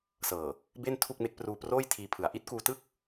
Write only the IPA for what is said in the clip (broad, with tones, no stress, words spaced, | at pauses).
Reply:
sɤː˨˩ | be˥˩ntʰu˥˩k̚me˦˥k̚ pruː˧proː˥˩jtʰiː˧pʰɯ˩˦a̯ ʔi˦˥t̚kuː˧tɯ˥˩k̚